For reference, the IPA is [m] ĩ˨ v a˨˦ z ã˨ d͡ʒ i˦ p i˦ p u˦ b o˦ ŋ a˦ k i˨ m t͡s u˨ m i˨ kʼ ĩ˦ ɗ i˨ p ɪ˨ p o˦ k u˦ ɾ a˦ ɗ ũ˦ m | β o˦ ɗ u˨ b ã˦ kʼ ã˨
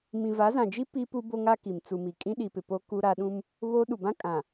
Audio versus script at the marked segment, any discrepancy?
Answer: no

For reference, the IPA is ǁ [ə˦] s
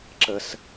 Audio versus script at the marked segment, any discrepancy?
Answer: no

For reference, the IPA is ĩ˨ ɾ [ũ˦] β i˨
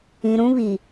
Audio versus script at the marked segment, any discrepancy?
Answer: no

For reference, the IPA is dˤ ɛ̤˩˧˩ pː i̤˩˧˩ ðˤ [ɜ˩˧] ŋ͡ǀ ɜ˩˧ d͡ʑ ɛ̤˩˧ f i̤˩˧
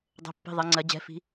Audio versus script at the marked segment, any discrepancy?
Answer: no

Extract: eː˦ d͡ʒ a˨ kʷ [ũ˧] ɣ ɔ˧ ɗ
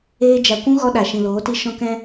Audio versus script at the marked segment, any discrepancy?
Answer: yes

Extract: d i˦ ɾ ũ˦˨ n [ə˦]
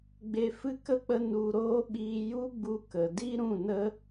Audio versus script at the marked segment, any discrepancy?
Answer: no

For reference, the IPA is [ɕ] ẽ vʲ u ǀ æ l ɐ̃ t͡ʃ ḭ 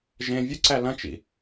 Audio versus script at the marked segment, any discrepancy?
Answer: yes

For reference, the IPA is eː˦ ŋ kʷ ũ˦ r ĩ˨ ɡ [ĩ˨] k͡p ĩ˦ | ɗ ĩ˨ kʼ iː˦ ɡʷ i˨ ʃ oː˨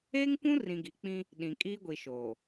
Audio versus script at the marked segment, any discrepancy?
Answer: yes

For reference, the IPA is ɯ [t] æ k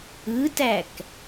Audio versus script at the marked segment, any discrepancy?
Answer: no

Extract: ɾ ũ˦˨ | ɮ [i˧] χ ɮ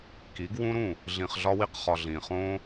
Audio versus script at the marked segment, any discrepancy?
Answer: yes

